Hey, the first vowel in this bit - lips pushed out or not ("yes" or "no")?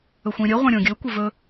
yes